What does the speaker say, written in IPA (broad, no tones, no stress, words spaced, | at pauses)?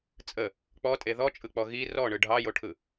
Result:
t͡sʼə | k͡pɔtʼe ðɔt͡ʃʼɯk͡pɔ ɣi rɔɳɯ ɖʱɑjoʈʰɯ